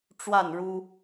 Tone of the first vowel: falling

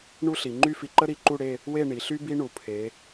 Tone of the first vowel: high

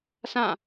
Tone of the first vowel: falling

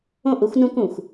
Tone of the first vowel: falling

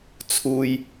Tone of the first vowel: low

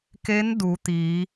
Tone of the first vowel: rising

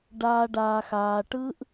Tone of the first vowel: low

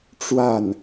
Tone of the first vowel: falling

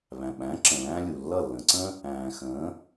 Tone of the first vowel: low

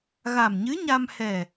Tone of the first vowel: low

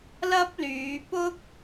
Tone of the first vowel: high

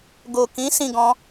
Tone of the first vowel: low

